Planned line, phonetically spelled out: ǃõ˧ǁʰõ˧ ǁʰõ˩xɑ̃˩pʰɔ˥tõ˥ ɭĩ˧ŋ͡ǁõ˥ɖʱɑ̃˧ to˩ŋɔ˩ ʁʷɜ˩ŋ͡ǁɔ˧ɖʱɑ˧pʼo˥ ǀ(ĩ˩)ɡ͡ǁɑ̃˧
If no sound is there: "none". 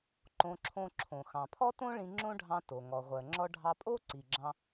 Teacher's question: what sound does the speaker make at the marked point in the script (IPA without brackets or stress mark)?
i˩